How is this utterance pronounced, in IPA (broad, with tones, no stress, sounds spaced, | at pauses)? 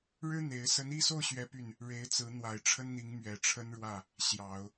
ɻ ɻ̩˥ n̪ e˧˥ ɪ̯ s ə˧˥ n i˥˧ s o˥˩ ʊ̯ ɕ ɥ ɛ˥ p y˥˩ n | ɻ e˧˥ ɪ̯ t͡s ɹ̩˧˥ n̪ w a˨˩ ɪ̯ ʈ͡ʂʰ ə˥ n n̪ i˧˥ ŋ m ɥ ɛ˨˩ ʈ͡ʂʰ ə˥ n ɻ w ä˥˩ | ɕ j ɑ˨˩˦ ʊ̯